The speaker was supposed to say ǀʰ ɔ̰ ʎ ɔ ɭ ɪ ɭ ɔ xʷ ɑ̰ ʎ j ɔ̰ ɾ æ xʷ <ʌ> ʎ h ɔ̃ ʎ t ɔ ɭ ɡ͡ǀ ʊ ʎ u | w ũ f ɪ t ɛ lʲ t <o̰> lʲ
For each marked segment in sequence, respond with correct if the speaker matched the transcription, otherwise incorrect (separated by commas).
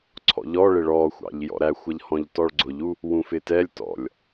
correct, incorrect